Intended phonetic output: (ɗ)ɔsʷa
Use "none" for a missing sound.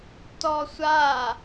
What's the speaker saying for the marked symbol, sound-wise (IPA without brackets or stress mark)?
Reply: t